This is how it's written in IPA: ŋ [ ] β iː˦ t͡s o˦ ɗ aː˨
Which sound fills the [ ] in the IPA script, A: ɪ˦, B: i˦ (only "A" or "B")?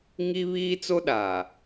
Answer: B